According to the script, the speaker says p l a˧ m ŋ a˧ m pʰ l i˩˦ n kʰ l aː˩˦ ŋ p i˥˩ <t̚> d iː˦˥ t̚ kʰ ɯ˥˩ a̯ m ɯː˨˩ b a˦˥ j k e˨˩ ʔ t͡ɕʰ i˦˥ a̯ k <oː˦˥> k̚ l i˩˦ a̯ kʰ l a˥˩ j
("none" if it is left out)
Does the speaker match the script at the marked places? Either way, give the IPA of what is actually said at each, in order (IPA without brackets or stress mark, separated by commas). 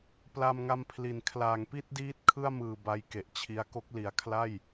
t̚, o˦˥